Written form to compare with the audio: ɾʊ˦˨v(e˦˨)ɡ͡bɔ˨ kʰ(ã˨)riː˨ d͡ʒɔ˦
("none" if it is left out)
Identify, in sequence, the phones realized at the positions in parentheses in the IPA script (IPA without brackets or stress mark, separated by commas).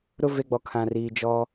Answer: e˦˨, ã˨